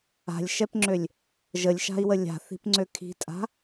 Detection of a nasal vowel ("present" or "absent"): absent